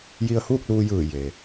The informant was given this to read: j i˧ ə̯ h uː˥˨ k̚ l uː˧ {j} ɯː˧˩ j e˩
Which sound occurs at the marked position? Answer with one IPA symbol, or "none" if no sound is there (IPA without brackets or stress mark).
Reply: j